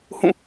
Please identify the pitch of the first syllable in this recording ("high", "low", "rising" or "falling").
falling